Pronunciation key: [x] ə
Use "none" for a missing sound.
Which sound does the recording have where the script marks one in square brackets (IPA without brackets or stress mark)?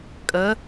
kʼ